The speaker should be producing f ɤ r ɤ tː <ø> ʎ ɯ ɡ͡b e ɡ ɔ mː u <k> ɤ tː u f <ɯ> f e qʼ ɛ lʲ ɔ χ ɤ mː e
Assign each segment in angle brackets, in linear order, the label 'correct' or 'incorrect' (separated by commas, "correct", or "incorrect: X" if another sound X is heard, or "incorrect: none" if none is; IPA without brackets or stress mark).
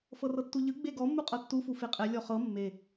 incorrect: u, incorrect: qʼ, incorrect: u